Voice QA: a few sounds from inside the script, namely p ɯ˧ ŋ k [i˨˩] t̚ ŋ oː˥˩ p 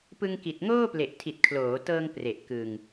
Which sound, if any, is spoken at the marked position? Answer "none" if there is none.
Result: i˨˩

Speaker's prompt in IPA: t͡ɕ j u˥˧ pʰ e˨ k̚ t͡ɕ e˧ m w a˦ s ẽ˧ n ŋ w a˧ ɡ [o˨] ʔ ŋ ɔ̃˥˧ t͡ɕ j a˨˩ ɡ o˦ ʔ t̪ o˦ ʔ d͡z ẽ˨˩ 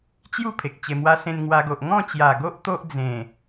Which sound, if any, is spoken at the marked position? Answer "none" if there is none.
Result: o˨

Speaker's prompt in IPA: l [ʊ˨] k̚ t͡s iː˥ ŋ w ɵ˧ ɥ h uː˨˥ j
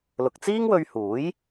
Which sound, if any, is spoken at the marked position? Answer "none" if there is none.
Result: ʊ˨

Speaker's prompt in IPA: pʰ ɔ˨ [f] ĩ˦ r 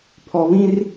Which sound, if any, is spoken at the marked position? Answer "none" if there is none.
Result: β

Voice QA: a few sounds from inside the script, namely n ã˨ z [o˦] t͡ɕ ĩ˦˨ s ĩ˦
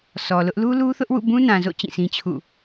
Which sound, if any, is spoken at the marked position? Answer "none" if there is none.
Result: o̰˦˨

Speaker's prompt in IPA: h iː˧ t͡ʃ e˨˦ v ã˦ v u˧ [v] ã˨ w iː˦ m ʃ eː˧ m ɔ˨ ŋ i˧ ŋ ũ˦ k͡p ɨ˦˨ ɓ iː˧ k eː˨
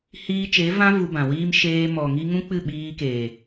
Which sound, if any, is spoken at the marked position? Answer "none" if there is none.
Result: b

